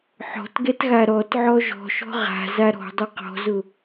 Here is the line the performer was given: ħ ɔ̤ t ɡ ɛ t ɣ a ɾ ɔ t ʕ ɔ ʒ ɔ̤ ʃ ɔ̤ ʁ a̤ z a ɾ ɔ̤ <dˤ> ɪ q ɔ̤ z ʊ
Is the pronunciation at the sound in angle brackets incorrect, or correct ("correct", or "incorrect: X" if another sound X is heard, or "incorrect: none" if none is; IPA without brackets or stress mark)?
correct